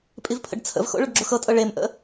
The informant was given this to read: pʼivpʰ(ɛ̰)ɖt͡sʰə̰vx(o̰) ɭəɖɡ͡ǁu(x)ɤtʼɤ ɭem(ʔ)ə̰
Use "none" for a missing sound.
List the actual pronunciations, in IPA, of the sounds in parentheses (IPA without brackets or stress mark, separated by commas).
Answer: ə̰, o̰, x, ʔ